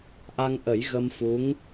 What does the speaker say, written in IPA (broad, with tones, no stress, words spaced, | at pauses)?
ʔa˧ŋʔə˨˩˦j ɣə˧mfu˧˥ŋ